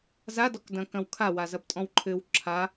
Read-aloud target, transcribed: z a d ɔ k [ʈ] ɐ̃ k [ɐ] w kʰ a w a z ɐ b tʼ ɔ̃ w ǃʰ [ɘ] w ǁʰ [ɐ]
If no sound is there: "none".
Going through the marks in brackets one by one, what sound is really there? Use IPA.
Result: d, ɐ̃, ɘ, a

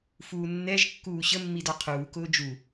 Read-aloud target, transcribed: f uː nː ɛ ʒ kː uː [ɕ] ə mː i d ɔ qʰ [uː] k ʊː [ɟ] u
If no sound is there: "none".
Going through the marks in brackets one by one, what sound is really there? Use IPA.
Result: ɕ, uː, d͡ʒ

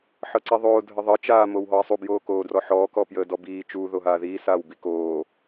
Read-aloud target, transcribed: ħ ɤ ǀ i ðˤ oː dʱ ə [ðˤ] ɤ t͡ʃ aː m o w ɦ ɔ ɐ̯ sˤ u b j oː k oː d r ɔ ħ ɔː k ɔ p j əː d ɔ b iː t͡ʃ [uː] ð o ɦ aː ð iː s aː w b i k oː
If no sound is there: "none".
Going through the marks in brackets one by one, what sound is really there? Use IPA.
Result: ðˤ, uː

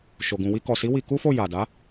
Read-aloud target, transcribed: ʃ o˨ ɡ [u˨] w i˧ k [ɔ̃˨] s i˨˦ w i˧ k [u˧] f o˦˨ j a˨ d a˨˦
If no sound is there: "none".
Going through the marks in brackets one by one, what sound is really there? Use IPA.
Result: ũ˨, ɔ˨, u˦

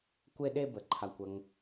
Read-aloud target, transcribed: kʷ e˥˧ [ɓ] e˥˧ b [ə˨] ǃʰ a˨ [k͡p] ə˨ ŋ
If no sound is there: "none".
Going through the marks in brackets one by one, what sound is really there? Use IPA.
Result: ɗ, ə˨, kʷ

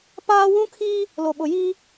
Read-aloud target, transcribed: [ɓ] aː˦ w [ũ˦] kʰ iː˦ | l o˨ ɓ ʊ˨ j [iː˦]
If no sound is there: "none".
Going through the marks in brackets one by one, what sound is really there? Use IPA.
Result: p, ũ˦, iː˦

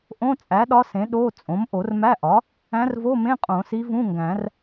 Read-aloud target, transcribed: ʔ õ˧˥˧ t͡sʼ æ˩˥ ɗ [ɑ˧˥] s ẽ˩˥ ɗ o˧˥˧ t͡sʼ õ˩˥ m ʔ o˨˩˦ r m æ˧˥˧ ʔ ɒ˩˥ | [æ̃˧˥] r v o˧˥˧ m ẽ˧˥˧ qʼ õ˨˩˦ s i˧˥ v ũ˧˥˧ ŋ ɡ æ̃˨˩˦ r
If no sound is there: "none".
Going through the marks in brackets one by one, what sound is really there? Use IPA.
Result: ɒ˧˥, æ̃˧˥

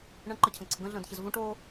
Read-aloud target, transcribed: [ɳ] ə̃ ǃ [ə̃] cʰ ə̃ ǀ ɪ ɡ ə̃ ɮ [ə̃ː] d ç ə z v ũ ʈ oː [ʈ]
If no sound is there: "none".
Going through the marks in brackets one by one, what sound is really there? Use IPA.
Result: ɳ, ə, ə̃ː, none

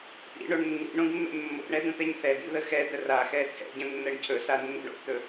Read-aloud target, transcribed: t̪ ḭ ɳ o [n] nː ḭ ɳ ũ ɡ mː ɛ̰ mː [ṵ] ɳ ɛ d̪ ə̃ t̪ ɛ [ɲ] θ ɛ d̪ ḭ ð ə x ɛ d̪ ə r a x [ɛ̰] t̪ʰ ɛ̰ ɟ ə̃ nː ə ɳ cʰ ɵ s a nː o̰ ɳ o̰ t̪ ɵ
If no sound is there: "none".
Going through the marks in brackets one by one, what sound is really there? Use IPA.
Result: ɳ, o̰, ɲ, ɛ

